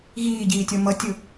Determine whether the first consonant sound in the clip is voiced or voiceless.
voiced